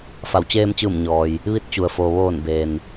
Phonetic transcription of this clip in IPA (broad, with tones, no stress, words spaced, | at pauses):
fa˩˧wt͡ɕeː˧mt͡ɕɯː˧˩m ɲɔː˩j | ʋi˧t̚t͡ɕu˩ə̯foː˩ ʋoː˧˩n beː˩n